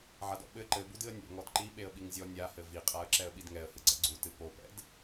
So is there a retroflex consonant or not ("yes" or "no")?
no